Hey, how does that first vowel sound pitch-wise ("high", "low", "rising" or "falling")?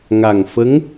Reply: low